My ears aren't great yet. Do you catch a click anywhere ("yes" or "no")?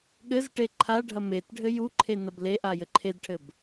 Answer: yes